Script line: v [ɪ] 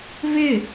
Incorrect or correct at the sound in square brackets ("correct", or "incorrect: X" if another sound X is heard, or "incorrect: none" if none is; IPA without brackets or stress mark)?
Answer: correct